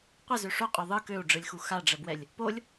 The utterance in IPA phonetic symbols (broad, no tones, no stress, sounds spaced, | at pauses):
qʷ ə z ø ʂ o qʼ ø ðˤ ɯ k ø u̯ ɖ͡ʐ ɯ lʲ x u x a ɖ͡ʐ ə b w ɛ lʲ | p o lʲ